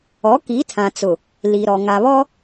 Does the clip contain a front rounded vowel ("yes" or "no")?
no